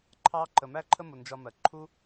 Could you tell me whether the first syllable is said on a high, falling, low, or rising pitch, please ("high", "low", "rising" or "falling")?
high